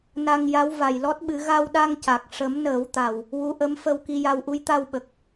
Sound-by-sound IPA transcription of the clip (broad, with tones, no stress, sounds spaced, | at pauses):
n a˧ ŋ j a˧˥ w v a˨˩ j l ɔ˦˥ t̚ ɓ ɨ˨˩˦ ɣ a˧ w ɗ a˧ ŋ c a˨˩ k̚ ʂ ə˨˩˦ m n əː˨˩˦ w t̪ a˨˩ w | w u˧˥ ʔ ə˧˥ m f ə˧ w k i˧ j a˧ w ʔ u˧˥ j t̪ a˧ w ɓ ə˨˩ k̚